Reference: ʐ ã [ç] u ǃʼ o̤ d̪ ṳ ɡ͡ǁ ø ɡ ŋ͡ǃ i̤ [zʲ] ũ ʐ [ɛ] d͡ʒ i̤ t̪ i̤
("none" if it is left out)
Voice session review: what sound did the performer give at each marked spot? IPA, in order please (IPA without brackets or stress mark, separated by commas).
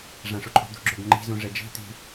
ʂ, z, ɛ